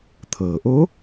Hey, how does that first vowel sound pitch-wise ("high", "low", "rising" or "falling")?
low